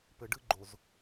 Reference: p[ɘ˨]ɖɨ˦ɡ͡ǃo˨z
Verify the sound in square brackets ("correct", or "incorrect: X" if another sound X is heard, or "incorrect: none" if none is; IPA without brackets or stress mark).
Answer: correct